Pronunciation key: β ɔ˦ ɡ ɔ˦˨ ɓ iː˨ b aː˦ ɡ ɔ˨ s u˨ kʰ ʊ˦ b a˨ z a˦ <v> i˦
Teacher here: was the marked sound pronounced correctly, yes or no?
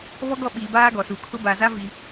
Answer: yes